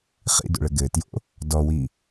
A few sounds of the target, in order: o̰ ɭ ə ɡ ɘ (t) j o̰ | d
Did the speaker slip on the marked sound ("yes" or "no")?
no